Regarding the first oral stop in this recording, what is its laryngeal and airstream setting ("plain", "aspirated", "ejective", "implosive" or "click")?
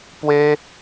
plain